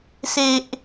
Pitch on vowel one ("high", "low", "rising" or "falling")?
low